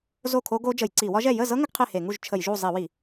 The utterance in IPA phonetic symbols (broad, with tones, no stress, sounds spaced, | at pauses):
z o˥˨ kʰ o˦˥ ɡ o˦˥ d͡ʒ ə˧˩˧ j ǀ i˧˩˧ w ɒ˦˥ ʒ ɛ˥˨ j ə˥˨ z ɤ˦˥ ŋ ə˦˥ ɡ qʰ e˥˨ h e˧˩˧ ŋ u˥˨ ʒ t͡ʃʰ ə˧˩˧ j ʒ u˥˨ zˤ i˧˩˧ w i˧˩˧